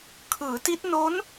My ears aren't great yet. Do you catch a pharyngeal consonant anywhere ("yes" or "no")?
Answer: no